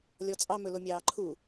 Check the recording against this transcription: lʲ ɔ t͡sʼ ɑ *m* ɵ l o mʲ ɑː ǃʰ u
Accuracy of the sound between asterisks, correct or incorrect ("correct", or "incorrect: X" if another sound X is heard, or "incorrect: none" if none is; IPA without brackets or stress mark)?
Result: correct